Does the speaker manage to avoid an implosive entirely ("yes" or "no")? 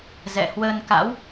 yes